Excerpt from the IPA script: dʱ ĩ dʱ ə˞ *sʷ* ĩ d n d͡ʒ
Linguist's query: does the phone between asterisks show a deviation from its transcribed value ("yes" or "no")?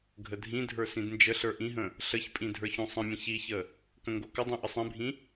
yes